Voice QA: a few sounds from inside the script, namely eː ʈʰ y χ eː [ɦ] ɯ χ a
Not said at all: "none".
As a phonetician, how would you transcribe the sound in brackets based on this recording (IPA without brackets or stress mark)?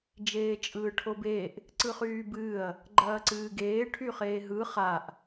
ɦ